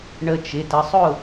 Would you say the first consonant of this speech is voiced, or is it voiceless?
voiced